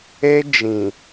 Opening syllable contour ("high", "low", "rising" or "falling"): high